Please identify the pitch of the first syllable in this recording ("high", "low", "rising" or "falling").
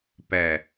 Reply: low